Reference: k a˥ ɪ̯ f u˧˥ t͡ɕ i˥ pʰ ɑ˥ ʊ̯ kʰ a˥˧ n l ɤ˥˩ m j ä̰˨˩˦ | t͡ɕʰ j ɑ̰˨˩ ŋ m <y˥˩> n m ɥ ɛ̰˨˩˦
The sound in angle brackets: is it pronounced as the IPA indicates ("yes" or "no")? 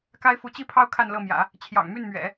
yes